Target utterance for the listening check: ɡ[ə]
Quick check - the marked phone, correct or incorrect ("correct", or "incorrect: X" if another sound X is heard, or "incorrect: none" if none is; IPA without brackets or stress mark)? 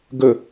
correct